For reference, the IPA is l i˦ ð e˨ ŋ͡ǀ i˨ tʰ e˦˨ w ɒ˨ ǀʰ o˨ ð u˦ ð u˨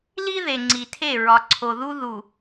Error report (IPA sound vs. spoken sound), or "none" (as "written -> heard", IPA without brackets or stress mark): w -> ɹ